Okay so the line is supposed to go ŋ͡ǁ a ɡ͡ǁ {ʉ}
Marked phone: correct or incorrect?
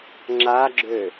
incorrect